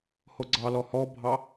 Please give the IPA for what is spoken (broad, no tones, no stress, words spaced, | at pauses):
hoɡ͡ǀɑlɔ hɔbʱɑ